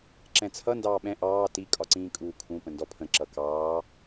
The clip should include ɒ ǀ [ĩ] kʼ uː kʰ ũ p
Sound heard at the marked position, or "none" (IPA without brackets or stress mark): ĩː